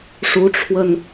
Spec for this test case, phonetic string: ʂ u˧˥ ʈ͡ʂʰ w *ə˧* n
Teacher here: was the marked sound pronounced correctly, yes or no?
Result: yes